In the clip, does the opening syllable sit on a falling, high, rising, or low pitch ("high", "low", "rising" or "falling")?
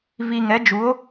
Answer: low